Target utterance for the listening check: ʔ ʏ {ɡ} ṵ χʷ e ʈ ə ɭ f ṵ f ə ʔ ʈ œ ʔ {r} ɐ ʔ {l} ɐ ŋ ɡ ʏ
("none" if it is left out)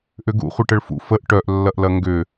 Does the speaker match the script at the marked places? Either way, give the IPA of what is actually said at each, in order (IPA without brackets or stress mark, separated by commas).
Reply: ɡ, lː, l